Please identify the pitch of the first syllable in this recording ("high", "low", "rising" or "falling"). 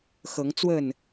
rising